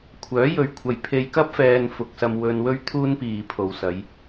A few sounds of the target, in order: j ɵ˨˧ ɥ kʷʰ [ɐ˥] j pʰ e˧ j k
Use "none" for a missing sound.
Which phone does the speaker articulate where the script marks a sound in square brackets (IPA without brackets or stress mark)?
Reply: ɐ˨